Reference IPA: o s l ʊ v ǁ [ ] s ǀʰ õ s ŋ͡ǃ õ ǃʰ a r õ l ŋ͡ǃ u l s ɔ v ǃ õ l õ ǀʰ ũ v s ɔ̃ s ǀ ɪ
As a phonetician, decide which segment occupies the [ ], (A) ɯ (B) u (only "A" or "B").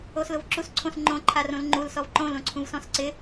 B